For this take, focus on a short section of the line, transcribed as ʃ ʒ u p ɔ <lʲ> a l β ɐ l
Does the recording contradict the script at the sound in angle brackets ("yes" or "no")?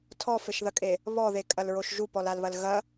yes